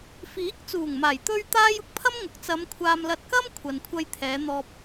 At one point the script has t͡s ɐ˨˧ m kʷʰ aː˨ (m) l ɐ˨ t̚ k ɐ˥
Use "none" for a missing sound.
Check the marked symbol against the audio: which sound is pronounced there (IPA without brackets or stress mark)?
m